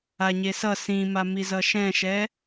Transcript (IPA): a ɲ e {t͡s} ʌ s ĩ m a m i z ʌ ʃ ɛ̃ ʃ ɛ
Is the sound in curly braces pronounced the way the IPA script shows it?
no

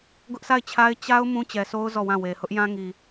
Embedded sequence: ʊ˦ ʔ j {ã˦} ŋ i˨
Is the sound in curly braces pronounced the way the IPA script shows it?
yes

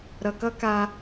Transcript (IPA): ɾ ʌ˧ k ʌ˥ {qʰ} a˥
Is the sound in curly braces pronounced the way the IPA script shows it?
no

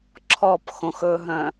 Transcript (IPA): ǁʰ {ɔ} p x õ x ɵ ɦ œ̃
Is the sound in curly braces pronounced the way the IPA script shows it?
yes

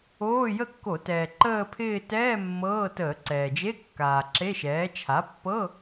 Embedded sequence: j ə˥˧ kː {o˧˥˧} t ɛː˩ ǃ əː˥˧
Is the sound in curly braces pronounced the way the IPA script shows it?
no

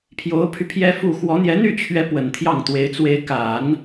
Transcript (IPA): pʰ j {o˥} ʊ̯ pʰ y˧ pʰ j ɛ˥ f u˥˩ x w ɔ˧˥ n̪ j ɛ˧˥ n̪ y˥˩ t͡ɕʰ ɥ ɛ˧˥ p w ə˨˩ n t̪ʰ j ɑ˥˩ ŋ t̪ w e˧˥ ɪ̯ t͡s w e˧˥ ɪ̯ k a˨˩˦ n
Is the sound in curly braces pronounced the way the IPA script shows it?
no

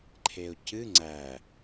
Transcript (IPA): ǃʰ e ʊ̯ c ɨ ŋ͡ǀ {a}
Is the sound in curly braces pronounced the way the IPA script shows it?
no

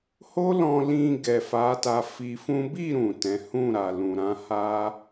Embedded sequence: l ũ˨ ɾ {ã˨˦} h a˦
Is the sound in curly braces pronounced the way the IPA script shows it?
yes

